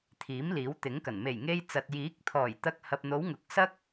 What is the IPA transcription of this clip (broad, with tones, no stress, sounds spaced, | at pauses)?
t̪ʰ iː˨˥ m l iː˨˥ w t̪ ɪ˨˥ ŋ k ɐ˨˩ n m e˨˩ j ŋ e˧ j t͡s ɐ˨ t̚ j iː˨˥ k̚ t̪ʰ ɔː˨˩ j t̪ ɐ˧ k̚ h ɐ˨ p̚ n̪ o˨˧ w ŋ ʊ˨˥ k̚ s ɐ˥ k̚